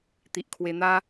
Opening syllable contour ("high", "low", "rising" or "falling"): low